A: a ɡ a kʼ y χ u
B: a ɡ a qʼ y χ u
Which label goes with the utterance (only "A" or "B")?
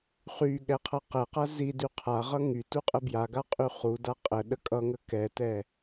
B